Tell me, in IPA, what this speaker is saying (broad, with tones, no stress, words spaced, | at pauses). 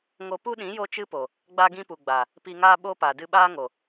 ŋo˧pu˦ɗĩ˨˦ jo˦t͡ʃɨ˦po˨ | ɡ͡ba˧ ɡĩ˧pu˨ ɡ͡ba˨ | pi˧ŋaː˦ɓo˦pa˨ dɨ˧ɓaː˦ŋo˨